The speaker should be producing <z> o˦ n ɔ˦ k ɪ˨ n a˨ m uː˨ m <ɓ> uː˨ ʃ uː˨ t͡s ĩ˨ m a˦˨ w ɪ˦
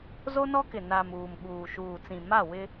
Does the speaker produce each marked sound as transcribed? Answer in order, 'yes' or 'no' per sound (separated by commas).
yes, yes